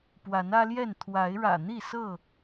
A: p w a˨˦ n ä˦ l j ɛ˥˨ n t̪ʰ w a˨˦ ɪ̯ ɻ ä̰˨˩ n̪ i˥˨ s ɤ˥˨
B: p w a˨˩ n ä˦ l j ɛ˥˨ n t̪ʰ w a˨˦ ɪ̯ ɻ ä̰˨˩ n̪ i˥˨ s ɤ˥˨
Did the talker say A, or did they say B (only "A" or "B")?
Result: A